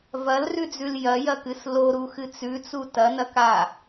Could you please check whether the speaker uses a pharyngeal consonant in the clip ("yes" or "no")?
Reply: no